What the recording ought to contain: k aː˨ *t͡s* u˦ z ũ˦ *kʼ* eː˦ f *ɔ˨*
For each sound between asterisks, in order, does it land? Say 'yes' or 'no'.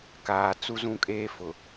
yes, yes, no

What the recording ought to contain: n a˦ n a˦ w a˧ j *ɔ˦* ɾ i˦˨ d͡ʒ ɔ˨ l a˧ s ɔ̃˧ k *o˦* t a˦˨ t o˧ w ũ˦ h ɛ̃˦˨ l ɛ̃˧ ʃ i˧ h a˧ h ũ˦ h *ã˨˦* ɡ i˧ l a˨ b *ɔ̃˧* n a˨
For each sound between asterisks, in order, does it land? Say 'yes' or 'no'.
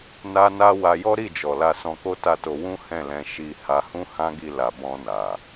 yes, yes, no, yes

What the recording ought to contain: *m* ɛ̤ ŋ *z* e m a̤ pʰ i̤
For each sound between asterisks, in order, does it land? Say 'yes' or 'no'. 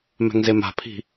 yes, yes

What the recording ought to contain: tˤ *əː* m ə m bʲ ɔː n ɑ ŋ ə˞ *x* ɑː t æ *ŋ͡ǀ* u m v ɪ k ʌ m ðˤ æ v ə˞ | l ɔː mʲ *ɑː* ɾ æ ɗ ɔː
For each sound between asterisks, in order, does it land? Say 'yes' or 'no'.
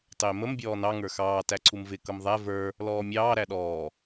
no, yes, no, yes

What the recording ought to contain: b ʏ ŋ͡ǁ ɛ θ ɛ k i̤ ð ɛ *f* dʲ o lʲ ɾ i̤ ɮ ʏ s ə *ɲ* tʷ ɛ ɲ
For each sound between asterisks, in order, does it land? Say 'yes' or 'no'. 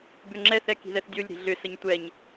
no, yes

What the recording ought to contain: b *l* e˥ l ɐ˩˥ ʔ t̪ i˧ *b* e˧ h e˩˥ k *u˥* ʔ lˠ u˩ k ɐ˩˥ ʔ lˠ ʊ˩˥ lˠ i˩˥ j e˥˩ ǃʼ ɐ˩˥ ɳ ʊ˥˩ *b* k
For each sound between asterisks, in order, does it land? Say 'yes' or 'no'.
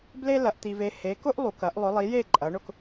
yes, no, no, no

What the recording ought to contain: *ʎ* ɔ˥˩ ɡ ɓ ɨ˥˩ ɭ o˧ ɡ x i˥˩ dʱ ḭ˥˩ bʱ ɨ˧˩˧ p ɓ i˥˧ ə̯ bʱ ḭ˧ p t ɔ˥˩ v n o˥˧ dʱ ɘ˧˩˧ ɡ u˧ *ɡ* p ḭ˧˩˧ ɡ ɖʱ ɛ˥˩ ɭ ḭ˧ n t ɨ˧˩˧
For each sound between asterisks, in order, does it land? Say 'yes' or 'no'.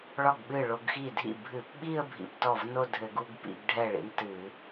no, yes

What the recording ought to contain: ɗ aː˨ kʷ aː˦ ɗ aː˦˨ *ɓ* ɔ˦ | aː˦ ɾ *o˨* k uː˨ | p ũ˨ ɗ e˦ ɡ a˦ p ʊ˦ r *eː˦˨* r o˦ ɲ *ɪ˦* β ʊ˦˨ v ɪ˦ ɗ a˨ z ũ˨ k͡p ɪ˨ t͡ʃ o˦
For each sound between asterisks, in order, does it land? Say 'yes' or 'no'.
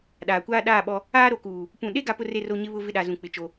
yes, yes, no, yes

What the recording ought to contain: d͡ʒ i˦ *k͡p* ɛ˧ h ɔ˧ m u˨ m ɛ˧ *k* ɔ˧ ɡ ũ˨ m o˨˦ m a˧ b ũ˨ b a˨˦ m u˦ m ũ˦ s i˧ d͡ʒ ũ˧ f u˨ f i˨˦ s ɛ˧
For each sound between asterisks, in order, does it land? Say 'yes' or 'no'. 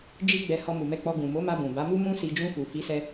no, no

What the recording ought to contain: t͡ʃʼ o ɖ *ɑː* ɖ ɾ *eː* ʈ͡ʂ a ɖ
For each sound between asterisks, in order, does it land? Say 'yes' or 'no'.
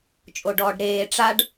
no, yes

